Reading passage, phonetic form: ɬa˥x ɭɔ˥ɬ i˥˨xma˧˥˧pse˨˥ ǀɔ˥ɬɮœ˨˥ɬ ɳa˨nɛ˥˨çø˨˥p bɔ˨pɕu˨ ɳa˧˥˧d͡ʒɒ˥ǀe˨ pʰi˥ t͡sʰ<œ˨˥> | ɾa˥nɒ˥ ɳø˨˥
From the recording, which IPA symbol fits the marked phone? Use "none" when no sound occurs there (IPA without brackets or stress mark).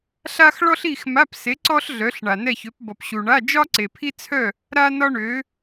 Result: œ˥˨